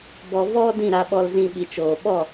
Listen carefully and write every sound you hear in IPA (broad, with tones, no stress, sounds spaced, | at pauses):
b ɔ˧ v ɔ˦ d ĩ˦˨ ɾ a˧ ɓ ɔ˧ l z ĩ˧ ɓ i˨ t͡ʃ oː˨ ɓ ɔ˦˨